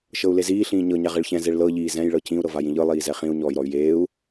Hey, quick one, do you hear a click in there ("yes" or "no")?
no